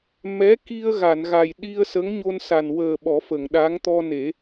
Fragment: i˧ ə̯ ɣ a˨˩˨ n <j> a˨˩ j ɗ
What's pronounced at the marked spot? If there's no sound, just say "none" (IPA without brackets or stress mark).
ɣ